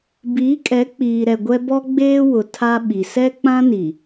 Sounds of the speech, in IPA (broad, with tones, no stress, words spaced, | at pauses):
biː˨˦kʼɛ˨˦ k͡piː˨ɾɛ˨ ɡʷɛ˦ bɔ˦ɡ͡beː˦wʊ˨ tʰa˦ ɓi˨sɛ˦ k͡pã˦ni˨